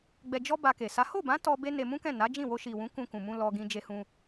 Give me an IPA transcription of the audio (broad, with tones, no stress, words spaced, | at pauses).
ɡ͡bɛ˧d͡ʒɔ˦ba˧ke˨ sa˨˦ ho˦˨bã˨˦ tɔ˧ be˦ne˧ mũ˦kɛ̃˦˨ na˨˦d͡ʒĩ˦˨ wo˧ʃi˨wũ˨˦ kũ˧kũ˨mũ˧ lɔ˧ɡĩ˧d͡ʒe˧hũ˧